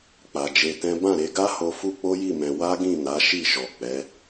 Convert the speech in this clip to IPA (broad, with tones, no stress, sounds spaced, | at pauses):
k͡p a˨ d͡ʒ e˧ t ɛ̃˦ b ã˦˨ ɾ e˧ ɡ a˦ h o˧ f u˦ k͡p o˦ j i˦˨ m ɛ̃˧ w a˦ ɡ ĩ˦˨ n a˨˦ ʃ i˦˨ ʃ ɔ˨ k͡p ɛ˨˦